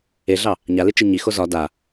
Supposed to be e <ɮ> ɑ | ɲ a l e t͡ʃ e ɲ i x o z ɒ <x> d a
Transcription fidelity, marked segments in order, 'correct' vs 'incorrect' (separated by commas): correct, incorrect